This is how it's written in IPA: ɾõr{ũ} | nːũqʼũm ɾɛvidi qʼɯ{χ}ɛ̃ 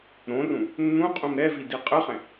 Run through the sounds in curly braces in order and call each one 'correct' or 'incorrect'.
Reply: correct, correct

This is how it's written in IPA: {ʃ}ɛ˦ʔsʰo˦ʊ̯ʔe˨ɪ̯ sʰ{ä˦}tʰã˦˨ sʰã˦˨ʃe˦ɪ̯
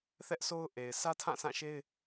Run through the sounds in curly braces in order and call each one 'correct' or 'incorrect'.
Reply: incorrect, correct

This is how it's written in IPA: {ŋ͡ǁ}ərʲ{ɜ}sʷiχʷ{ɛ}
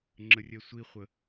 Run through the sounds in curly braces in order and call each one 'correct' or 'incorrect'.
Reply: correct, correct, incorrect

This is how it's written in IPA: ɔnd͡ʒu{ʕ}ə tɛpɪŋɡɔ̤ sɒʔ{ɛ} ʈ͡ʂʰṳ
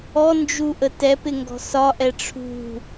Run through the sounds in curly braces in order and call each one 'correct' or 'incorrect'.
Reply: incorrect, correct

